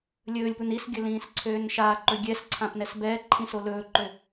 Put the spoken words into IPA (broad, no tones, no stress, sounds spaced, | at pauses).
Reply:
lʲ ɵː lʲ p u n i s ɡʲ ɵ l ĩː s ǀʰ øː n ʃ a ǃ ɵ ɡʲ ɛ s ǀʰ ã p n ɛ s b ɛː ǃʰ ĩ s o l ɵː ǃ ø